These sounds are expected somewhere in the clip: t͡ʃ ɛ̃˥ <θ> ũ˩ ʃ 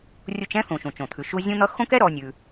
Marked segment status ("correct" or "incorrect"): correct